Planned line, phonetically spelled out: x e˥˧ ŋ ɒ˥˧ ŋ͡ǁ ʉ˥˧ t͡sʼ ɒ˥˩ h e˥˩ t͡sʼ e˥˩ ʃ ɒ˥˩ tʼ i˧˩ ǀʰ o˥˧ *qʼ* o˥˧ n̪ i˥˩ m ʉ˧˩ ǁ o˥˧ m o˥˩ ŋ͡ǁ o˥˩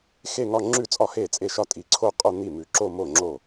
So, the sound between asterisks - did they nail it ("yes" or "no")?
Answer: yes